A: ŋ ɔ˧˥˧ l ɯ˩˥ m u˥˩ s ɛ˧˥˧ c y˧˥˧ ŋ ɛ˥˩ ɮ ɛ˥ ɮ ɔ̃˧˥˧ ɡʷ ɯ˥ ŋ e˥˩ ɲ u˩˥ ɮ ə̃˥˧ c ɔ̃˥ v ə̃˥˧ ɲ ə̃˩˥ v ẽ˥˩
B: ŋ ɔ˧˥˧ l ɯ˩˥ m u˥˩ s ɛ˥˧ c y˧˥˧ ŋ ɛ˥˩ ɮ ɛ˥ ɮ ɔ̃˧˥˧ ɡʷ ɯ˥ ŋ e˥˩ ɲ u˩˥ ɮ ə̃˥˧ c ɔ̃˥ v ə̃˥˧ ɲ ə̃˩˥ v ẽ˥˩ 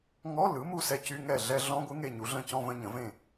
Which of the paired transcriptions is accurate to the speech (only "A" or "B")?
B